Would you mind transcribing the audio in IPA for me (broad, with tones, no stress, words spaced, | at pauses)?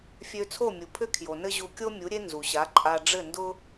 fʲø˧t͡sʰo˥˩mʲu˩pʰʏ˥ kʰjo˩nɘ˥ʑu˧ kʲo˥mʲu˩˥ ɾʲe˥ nzu˩ɕa˩˥ǃʼa˧ ɖ͡ʐɘ˥˩ndʊ˥